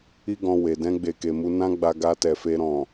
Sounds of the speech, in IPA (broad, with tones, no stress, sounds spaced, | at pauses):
i˦ ɡ ɔ̃˧ w e˨ d ɛ̃˧ ɡ͡b e˨ k e˨ m u˨˦ n ã˦ ɡ͡b a˧ ɡ a˧ t ɛ˨ f e˧ ɾ ɔ̃˨